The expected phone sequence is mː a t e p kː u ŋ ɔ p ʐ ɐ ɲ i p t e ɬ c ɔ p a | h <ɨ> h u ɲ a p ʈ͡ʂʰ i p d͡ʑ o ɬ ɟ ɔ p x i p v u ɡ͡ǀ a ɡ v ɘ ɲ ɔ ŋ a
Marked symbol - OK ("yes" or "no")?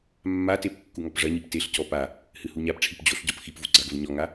yes